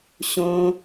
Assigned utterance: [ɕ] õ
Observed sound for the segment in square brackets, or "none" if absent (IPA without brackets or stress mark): ɕ